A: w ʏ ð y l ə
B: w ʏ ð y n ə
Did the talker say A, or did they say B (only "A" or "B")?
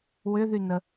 B